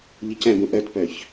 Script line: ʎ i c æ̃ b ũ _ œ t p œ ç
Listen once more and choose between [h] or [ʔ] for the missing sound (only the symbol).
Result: ʔ